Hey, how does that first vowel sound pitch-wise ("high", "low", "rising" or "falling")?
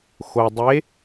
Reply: low